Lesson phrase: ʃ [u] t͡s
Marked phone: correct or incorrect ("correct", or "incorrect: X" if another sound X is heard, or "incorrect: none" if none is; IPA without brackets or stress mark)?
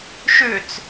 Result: incorrect: ʏ